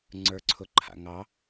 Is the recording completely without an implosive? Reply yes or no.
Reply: yes